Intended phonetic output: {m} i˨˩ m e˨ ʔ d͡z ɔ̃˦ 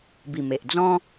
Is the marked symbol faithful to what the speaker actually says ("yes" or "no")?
no